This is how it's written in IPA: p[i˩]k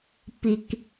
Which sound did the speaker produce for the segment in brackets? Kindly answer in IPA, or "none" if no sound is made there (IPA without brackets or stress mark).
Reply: i˩